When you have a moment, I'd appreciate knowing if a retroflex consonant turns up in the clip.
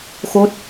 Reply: no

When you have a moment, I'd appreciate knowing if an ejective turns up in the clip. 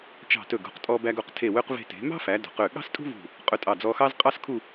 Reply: yes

